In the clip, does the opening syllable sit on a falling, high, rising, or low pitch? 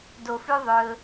low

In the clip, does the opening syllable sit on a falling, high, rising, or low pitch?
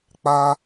high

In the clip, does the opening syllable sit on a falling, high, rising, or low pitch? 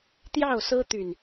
falling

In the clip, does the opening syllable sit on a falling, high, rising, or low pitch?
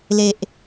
low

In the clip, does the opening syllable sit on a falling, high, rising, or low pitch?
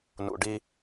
low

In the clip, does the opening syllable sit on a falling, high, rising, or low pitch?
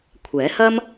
rising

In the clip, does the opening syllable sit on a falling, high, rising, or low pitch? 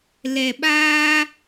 low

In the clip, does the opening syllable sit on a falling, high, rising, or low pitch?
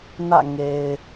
falling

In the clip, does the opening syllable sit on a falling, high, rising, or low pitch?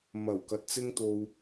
low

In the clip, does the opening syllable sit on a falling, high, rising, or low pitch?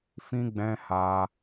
high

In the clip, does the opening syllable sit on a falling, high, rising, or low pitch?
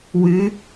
rising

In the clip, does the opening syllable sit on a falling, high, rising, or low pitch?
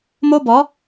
high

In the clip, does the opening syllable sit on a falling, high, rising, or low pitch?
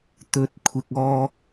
rising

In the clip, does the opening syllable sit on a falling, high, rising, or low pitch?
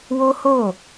high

